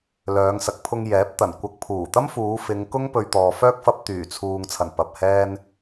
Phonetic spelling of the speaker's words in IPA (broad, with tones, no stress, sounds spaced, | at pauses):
l œː˨˧ ŋ s ɐ˨ k̚ pʰ ʊ˧ ŋ j ɛː˨˥ p̚ t̪ ɐ˨˩ n kʷ ɐ˧ k̚ pʰ uː˨˩ t̪ ɐ˥ m f uː˨˧ f ɪ˨˧ ŋ k ʊ˥ ŋ p ɵ˧ ɥ t̪ ɔː˨ f œː˥ k̚ f ɐ˧ p̚ t̪ yː˨˩ t͡sʰ uː˨ ŋ t͡sʰ ɐ˨˩ n p ɐ˨ p̚ h ɛː˥ n